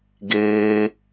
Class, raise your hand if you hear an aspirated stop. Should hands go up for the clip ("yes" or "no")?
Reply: no